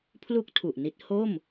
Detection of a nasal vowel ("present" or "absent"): absent